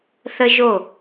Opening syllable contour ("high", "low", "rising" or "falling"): high